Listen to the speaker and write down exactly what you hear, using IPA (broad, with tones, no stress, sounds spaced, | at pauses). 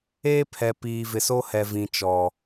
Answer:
eː˦ pʰ ɛ˨ p iː˨ v ɪ˨ s o˦ h ɛ˨ v ĩ˨ t͡ʃ ɔ˨